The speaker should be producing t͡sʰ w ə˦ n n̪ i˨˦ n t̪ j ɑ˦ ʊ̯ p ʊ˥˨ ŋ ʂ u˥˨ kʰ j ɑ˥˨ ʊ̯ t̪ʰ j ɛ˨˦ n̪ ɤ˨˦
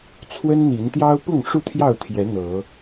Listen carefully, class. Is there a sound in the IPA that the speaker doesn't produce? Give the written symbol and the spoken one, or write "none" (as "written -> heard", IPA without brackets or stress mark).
kʰ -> t̪ʰ